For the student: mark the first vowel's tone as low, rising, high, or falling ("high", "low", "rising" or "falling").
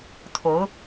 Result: rising